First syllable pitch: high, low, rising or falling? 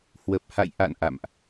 low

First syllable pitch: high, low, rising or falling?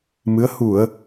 rising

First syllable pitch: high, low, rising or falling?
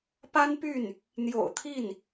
high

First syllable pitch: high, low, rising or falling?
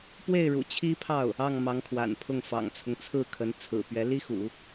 falling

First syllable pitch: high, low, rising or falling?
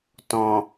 low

